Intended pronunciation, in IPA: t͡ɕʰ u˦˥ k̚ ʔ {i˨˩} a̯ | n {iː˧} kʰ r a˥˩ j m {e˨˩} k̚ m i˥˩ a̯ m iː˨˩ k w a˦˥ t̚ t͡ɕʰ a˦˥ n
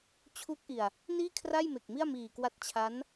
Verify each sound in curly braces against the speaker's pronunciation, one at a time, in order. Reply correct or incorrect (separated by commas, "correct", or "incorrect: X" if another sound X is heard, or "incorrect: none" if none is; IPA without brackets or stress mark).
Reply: correct, incorrect: iː˥˩, correct